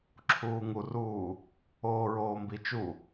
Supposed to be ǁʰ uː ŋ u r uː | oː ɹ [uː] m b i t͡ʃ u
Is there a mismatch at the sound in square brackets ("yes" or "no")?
yes